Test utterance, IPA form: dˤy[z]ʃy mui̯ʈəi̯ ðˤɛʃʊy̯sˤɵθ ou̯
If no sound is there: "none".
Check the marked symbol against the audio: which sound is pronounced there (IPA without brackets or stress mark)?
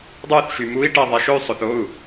θ